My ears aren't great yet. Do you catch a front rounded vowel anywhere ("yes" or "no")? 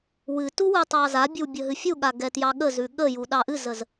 no